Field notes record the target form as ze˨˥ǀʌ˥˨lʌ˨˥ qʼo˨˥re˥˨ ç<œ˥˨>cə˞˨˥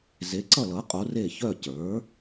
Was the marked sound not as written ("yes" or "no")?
no